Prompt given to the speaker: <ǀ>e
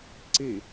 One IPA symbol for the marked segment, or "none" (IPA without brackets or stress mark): ǀ